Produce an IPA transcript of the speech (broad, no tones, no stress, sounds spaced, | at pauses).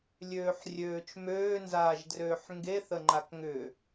lʲ øː ħ rʲ øː t͡ʃ m øː n z aː ʒ d r øː ħ ŋ ɡ e θ ə ŋ͡ǃ a k ŋ ʏ